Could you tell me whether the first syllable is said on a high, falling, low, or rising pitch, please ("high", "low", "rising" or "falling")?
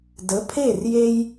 rising